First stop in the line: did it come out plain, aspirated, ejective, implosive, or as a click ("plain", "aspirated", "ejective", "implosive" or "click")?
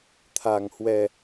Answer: aspirated